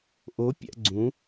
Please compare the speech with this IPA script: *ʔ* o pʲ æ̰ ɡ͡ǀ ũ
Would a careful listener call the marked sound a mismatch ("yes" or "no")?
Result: no